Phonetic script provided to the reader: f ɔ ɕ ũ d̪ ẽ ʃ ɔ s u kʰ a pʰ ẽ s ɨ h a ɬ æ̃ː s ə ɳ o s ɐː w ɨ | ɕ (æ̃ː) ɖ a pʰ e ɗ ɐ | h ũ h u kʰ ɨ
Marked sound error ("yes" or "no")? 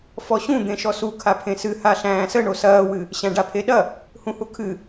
yes